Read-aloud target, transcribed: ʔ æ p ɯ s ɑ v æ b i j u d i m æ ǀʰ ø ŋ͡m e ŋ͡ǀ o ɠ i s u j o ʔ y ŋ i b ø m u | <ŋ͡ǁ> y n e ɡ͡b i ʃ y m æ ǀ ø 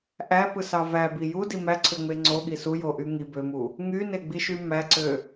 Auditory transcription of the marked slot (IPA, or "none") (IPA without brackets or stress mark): ŋ